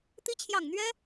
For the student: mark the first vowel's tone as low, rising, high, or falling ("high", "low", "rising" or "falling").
rising